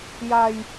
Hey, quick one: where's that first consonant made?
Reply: palate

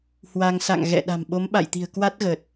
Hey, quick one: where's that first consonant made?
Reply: throat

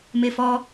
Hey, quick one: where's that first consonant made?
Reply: lips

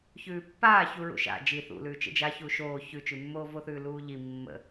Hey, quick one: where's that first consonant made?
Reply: palate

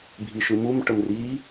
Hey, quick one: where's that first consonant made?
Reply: lips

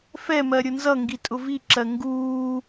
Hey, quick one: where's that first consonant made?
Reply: lips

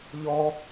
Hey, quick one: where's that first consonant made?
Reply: palate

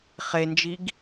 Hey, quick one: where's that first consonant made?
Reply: uvula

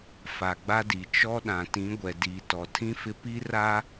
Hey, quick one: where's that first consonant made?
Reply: lips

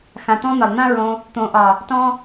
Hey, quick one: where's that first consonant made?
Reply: velum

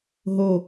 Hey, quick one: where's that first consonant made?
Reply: throat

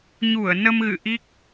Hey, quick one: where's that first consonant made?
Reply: palate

